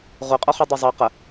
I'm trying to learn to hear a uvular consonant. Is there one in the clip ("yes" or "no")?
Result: yes